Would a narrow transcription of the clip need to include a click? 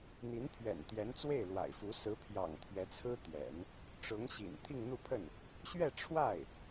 no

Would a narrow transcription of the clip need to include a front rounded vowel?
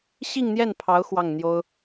no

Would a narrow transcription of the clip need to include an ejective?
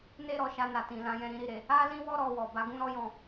no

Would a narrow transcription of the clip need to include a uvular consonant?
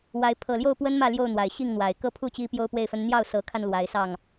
no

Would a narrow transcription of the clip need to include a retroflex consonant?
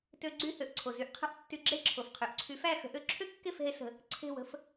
no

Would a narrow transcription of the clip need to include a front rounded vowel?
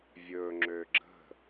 yes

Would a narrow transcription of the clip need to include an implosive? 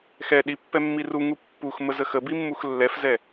yes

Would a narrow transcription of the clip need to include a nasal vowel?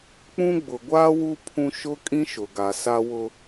yes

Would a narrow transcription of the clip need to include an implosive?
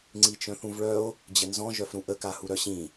no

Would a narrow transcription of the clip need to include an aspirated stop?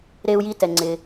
no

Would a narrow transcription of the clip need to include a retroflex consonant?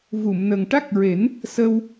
yes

